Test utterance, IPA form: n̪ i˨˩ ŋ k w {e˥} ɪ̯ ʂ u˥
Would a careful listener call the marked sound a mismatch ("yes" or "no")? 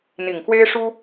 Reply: no